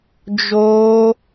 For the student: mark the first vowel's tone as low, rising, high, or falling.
high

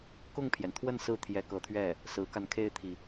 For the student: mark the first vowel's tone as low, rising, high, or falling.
falling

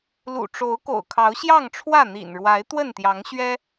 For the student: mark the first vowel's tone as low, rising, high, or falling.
low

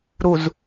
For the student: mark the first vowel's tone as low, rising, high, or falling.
low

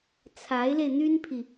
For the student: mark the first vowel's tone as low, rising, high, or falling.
rising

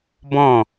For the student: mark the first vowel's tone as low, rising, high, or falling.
falling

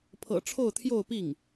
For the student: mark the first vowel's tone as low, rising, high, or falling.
low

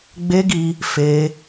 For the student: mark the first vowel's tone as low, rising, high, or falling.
high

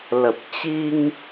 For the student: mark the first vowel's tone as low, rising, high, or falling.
low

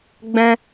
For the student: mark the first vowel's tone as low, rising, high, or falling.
high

